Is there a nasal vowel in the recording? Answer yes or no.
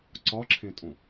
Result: yes